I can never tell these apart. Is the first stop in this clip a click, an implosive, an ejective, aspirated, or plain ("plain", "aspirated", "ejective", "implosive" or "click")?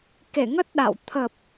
plain